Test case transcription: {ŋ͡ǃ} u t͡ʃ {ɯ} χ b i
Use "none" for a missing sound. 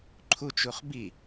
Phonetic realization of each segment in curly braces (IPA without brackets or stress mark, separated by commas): ǃʰ, u